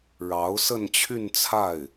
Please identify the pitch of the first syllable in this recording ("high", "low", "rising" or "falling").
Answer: rising